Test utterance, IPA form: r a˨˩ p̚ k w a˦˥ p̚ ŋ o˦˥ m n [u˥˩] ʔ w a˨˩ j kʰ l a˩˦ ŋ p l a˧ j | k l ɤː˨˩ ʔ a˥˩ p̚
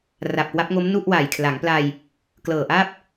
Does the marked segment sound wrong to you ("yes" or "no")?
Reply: no